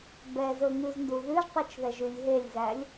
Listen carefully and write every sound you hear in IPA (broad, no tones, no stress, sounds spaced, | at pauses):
b ɛ z ɵ ŋ ʉ z n d u ð ʉ ʒ tˤ u t͡ʃ ð ɛ ʒ y lʲ ɦ e lʲ z æ lʲ